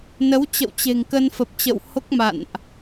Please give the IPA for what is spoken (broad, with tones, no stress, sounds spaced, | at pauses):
n ə˨˦ w t͡ɕ ə̰˧˨ w t͡ɕ e̤˨˩ ŋ k ə˧ n f ə˨˩ p̚ t͡ɕ ə̰˧˨ w h o˦˥ k̚ m a̰˧˨ n ʔ